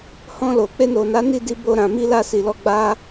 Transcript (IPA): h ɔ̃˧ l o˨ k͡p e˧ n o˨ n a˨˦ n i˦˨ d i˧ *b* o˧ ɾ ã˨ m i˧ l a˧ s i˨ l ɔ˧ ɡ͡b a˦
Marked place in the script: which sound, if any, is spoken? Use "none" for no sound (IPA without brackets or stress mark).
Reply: b